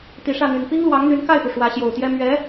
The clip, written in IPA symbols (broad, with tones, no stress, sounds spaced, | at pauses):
t̪ i˨˩ ʂ ä˥˩ n̪ y˨˩ n p i˥ ŋ l w ɑ˧˥ ŋ n̪ y˧˥ n k a˥˩ ɪ̯ p u˩ ʂ w ä˧˥ ɕ j o˨˩ ʊ̯ t̪ j ɛ˥ m ɥ ɛ˧˥